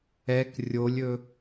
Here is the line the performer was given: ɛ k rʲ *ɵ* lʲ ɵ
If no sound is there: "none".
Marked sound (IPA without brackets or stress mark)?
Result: o